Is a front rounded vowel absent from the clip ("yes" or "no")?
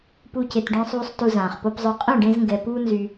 no